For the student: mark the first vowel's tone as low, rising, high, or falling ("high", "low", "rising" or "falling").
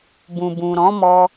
low